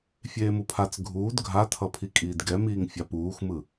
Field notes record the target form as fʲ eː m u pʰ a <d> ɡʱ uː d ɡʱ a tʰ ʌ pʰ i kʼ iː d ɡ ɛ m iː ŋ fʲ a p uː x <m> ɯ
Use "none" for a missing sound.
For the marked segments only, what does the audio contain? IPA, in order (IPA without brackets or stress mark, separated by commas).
t͡s, m